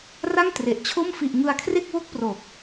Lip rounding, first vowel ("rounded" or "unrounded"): unrounded